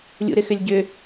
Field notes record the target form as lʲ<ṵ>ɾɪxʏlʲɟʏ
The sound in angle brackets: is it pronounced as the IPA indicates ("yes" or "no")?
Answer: yes